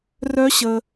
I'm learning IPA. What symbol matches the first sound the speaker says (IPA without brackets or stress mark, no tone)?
r